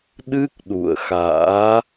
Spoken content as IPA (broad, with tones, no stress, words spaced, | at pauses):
ɗɨ˦˥k̚ ɗṵ˧˨ə̯ xa̰ː˧˥